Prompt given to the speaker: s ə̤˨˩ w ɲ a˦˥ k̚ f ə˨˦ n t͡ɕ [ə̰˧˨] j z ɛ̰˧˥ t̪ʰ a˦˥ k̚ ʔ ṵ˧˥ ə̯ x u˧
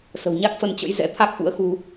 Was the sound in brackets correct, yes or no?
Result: no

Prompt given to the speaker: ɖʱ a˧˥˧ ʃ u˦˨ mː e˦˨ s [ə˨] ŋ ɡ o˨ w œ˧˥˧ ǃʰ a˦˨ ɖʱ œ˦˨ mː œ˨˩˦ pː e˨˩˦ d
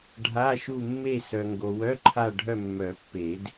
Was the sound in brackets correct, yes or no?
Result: no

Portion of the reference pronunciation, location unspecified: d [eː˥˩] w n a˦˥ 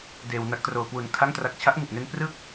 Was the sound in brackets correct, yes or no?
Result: no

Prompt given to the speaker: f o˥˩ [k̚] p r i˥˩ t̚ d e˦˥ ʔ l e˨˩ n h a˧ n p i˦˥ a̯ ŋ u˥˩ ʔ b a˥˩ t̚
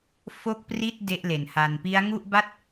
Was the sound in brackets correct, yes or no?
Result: yes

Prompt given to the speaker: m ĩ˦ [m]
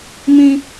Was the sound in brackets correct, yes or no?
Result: no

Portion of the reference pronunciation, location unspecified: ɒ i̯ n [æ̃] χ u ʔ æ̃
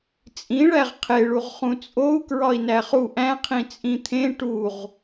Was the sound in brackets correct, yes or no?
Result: no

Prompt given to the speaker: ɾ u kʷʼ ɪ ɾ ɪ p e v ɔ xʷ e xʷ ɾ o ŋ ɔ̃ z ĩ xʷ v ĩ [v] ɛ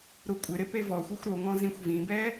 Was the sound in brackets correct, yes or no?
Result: no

